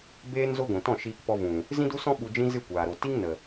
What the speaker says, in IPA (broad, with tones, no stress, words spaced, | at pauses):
beː˦nzo˦ɡʷĩ˨ tɔ̃˦˨ʃiː˧kpɔ˧vũ˨ | zĩ˦du˦sɔ̃˦ ɓu˧d͡ʒĩ˦ zɨ˦˨kʷaː˨ɾo˨ ti˦ŋ nə˨